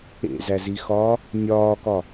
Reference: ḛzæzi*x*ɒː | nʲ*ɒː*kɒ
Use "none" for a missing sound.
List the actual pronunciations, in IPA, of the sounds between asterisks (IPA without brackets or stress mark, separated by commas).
x, ɒː